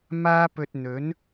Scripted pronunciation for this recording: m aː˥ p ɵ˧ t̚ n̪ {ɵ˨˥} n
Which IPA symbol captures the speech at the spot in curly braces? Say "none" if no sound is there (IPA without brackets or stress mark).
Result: ɵ˨˥